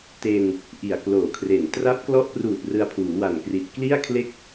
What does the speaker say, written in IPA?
t e˧ n | ʔ i˨˩ a̯ k l oː˨˩ kʰ r e˨˩ n t r a˦˥ p̚ k l ɔ˦˥ ʔ p r uː˨˩ t̚ r ɯ˧ a̯ pʰ uː˩˦ w a˨˩ n k r i˨˩ t̚ k l i˥˩ a̯ kʰ l e˥˩ k̚

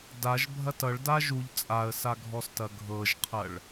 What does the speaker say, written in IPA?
d a ʒ bʱ ɐ t ʌ ɭ d a ʒ u ʎ t͡sʼ a ə̯ s a ɡʱ ɔ s t ɐ ɡʱ ɤ ʒ qʰ ɐ ɭ

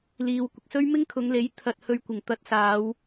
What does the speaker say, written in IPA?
l iː˨ w kʷ ɪ˨ k̚ s ɵ˥ ɥ m ɪ˥ ŋ kʰ ʊ˨˧ ŋ l e˨˥ j t̪ʰ ɐ˧ t̚ h ɵ˧ ɥ kʷ ɪ˨˩ ŋ t̪ ɐ˧ t̚ s aː˨˧ w

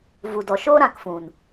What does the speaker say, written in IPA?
v u˨ d ɔ˨ ʃ oː˦ ɾ ã˧ k f ũ˨ n

